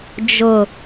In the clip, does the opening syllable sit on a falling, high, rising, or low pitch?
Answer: low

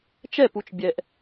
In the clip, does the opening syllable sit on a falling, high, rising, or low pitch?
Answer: falling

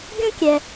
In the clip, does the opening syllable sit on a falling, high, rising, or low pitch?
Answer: high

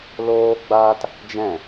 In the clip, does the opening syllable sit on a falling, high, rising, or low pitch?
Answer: high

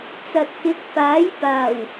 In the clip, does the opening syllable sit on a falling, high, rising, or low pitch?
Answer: low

